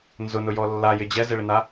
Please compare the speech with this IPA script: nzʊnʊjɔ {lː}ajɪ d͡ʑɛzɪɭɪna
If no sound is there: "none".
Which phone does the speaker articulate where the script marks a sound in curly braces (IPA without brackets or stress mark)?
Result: lː